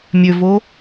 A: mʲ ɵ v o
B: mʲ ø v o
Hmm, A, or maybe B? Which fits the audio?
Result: B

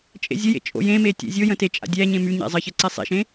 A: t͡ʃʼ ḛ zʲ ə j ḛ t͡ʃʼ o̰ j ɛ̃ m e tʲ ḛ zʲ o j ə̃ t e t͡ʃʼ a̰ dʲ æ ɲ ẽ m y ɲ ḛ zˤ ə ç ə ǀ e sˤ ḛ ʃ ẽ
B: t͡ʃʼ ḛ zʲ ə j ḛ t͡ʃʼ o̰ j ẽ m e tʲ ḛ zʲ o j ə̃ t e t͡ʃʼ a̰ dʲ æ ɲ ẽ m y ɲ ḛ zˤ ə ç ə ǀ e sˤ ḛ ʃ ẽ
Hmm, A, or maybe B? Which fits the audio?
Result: B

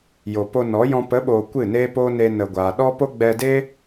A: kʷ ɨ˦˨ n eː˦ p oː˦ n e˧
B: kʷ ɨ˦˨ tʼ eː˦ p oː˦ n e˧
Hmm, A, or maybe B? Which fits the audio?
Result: A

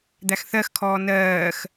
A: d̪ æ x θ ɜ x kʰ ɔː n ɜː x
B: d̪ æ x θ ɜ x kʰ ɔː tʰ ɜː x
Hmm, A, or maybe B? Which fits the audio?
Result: A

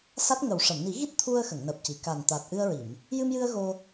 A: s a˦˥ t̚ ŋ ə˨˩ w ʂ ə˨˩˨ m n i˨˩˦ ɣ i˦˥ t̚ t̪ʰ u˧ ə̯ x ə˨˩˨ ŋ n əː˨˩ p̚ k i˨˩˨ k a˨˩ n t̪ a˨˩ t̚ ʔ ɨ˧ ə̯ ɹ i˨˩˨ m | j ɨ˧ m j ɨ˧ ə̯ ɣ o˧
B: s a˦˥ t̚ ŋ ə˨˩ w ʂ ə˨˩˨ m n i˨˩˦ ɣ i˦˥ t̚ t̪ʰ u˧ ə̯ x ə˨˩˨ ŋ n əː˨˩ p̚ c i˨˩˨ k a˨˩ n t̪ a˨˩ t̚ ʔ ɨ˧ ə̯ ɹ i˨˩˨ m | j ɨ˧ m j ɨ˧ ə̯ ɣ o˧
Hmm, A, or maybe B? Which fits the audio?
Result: B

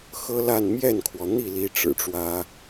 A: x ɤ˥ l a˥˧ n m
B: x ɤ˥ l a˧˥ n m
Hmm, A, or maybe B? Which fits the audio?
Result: A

